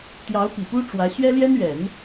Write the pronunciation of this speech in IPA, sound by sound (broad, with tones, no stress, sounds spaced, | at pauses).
t̪ j ɑ˧˥ ʊ̯ p i˨˩ p u˥ ʈ͡ʂ w ä˧˥ ɕ ɥ ɛ˥ l j ɛ˥ n ɥ ɛ˨˩˦ n